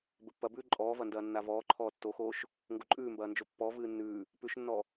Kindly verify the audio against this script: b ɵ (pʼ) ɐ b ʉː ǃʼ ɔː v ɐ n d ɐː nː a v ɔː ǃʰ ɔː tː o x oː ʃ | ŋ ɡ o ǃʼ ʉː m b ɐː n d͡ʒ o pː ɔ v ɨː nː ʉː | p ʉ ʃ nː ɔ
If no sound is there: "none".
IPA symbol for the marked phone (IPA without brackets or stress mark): pː